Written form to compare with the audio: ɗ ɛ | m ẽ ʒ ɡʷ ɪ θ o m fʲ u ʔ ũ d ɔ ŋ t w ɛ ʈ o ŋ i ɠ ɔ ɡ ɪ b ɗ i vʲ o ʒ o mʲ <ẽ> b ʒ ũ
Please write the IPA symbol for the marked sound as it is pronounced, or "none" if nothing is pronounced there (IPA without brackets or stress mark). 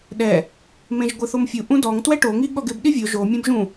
ẽ